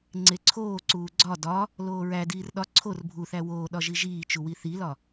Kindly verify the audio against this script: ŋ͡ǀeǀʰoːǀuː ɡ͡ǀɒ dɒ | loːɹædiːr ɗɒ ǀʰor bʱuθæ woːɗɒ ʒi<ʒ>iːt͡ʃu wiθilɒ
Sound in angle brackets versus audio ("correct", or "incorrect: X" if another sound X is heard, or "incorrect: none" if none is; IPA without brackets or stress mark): correct